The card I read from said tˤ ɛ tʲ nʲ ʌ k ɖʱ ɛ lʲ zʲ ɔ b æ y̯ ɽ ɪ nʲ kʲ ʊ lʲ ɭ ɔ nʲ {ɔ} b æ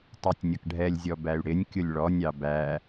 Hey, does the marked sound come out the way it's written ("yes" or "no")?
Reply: no